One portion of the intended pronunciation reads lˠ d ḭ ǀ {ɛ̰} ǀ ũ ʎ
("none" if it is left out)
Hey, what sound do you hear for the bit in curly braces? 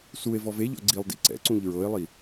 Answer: ɛ̰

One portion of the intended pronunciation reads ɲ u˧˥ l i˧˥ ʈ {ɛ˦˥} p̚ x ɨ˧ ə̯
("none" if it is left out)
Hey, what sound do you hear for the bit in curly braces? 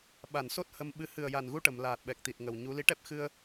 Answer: ɛ˦˥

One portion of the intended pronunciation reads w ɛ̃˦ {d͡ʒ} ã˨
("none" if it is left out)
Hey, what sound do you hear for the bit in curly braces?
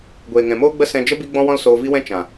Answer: t͡ʃ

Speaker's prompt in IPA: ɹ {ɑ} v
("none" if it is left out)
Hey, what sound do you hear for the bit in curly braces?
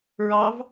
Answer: ɑ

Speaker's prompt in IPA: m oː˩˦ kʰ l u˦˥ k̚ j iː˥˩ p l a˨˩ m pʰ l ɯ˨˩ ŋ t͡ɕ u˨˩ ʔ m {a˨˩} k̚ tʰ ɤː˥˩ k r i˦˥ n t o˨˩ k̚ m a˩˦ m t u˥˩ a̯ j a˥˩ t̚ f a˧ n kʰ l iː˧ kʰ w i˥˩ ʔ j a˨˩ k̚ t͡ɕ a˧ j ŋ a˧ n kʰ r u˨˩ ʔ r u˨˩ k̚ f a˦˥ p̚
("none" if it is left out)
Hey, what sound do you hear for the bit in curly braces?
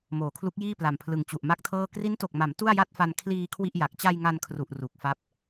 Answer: a˥˩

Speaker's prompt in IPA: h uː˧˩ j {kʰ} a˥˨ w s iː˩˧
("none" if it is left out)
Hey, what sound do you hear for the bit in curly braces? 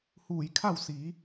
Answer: kʰ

